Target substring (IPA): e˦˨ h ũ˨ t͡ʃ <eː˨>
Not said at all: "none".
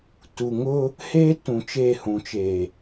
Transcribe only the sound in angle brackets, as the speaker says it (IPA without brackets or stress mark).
eː˨